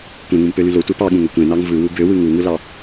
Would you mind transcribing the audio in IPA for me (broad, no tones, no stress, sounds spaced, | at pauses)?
kʷ ẽ ŋ ũ m p ø l y l o tʷ e p ɑ ɠ ũ ŋ ø kʷ ẽ n ɑ ŋ v ɯ w u b ø w ɯ ŋ u ŋ ɯ l ɑ